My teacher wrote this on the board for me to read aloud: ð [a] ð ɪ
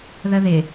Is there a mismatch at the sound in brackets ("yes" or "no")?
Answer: yes